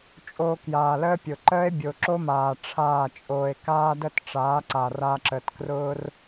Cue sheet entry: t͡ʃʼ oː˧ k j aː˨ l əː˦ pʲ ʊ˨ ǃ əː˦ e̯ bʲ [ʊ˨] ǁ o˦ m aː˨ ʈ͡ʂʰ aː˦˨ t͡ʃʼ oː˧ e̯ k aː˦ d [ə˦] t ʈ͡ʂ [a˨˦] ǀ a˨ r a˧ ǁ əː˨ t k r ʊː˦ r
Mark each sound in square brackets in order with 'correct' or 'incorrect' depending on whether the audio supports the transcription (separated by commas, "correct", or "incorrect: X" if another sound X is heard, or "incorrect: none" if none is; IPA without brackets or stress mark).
correct, correct, incorrect: aː˨˦